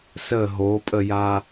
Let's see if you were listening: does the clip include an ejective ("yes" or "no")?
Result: yes